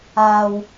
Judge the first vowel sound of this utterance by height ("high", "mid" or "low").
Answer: low